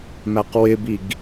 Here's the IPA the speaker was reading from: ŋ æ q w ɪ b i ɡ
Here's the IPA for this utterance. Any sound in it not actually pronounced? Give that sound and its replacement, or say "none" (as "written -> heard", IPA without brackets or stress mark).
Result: ŋ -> m